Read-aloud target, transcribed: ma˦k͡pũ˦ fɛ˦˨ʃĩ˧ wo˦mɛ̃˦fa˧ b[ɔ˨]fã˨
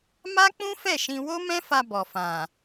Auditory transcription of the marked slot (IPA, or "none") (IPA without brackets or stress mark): ɔ˨